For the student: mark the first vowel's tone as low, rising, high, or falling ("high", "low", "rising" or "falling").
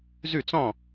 falling